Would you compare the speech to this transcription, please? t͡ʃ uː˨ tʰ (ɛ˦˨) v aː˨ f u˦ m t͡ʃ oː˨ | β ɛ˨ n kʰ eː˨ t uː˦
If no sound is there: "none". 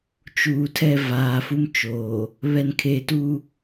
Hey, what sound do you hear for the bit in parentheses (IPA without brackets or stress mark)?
ɛ˦˨